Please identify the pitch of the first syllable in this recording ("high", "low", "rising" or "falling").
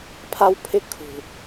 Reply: high